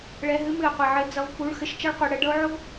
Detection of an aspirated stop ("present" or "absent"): absent